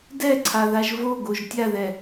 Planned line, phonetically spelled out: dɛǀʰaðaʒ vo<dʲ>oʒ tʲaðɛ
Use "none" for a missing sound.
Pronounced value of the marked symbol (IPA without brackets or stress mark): ɡ